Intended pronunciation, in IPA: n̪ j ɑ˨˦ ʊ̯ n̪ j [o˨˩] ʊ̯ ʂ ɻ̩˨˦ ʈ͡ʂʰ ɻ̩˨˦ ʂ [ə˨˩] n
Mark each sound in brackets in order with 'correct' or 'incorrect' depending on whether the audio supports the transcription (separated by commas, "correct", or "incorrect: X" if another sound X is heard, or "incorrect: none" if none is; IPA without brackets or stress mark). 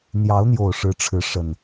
correct, correct